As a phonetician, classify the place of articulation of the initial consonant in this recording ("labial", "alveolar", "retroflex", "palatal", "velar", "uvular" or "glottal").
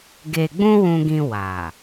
velar